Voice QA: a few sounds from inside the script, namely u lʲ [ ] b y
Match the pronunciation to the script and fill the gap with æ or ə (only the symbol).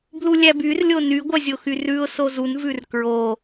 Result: æ